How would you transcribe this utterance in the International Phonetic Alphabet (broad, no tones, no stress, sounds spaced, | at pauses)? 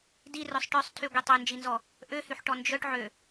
d i r œ sˤ ʈ œ sˤ tʰ y ɡʷ i tˤ ø n d͡ʒ i n z ɔ | ʔ ø h y ħ ʈ ɔ n d͡ʒ œ ʈ ʕ ø